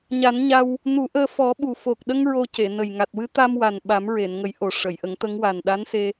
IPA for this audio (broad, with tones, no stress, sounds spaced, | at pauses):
ɲ a˨˩˦ n ɲ a˧ w | n u˨˩˦ ʔ əː˧ f ɔ˨˩˦ ɓ u˨˩ f o˨˩ k̚ ɗ ə˧ ŋ ɹ o˧ c e˨˩˨ n ə˨˩ j ŋ a˨˩ t̚ w ɨ˧˥ t̪ a˧ m w a˨˩ n ɓ a˨˩˦ m ɹ e˨˩˨ n ŋ ə˨˩˦ j ʔ o˨˩ ʂ ə˨˩˨ j ʔ ə˨˩˦ ŋ t̪ ə˧˥ ŋ w a˨˩ n ɗ a˧˥ n s e˧